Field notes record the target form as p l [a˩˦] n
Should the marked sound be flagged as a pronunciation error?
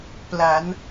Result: no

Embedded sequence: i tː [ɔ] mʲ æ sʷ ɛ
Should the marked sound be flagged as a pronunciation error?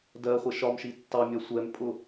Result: yes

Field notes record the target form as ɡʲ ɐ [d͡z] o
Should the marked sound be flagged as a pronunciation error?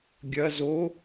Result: yes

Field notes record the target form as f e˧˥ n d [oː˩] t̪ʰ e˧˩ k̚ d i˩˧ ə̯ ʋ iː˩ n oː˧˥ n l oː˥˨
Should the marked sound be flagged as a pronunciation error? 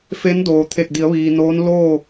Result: no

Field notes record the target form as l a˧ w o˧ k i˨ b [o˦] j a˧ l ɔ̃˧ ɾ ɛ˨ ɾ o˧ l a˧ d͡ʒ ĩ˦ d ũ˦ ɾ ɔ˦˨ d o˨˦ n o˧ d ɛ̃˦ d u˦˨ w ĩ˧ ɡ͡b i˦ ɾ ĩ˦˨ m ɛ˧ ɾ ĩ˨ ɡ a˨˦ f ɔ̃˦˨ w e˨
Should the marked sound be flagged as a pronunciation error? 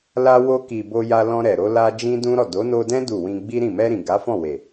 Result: yes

